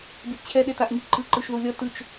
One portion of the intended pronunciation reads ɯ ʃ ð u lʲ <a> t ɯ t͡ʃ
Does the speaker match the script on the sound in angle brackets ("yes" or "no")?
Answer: no